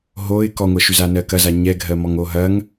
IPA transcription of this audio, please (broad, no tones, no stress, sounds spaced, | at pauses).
ɦ o ɪ̯ k ɔ ŋʷ ɜ ʃ ʉ z a n ɜ k ɐ z a ɲ ɛ ɡʱ ɜ m ɔ ŋ o ɦ ɐ ŋ